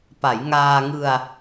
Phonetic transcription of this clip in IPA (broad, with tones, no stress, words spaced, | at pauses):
pa˩˦jŋaː˧ ŋɯ˧a̯